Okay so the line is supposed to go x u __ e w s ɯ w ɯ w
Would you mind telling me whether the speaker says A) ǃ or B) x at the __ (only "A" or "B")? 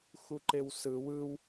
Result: A